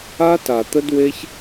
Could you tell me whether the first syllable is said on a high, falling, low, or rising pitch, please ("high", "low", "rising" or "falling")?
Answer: high